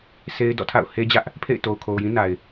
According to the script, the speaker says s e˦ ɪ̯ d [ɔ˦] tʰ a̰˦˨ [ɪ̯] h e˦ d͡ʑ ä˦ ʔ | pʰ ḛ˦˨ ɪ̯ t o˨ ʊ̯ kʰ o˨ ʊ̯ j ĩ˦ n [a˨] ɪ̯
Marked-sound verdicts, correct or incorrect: incorrect: ɔ̰˦˨, incorrect: ʊ̯, correct

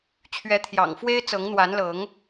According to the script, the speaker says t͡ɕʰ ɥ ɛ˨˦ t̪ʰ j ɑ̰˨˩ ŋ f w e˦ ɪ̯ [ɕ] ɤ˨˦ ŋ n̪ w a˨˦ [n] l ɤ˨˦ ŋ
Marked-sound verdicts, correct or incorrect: incorrect: t͡s, correct

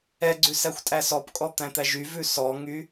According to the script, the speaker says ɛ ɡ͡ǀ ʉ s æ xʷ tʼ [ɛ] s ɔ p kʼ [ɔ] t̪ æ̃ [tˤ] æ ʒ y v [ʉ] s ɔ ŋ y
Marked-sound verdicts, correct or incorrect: incorrect: æ, correct, incorrect: t̪, correct

